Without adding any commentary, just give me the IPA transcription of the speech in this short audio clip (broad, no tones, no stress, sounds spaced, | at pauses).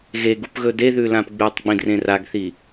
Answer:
ɣ e ɡ u p ɣ ɵ d e ð ʉ l ã p ɡ͡b ʉ tˤ ɡ͡b ĩ d r ẽ r a ɡ θ i